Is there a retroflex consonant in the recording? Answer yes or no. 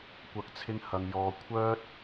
no